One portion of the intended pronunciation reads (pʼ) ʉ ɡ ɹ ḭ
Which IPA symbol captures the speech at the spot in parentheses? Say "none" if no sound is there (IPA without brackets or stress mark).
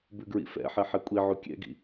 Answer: b